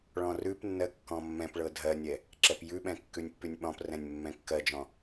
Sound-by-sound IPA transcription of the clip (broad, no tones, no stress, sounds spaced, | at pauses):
ɭ ɔ̃ r ʉ p nː ɜ kː ɔ̃ mː ɛ̃ p ɭ ɤ dʱ ɜ nʲ ɛ | ǁ ɛ p j ʉ ɓ ɛ̃ kː ʉ nʲ pː y nʲ ɓ ɔ̃ p r ɛ̃ nʲ mː ɛ̃ kː ɜ d͡ʒ ɔ̃